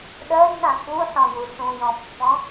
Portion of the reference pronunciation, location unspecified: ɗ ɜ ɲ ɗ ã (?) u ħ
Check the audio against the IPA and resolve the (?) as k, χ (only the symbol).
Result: k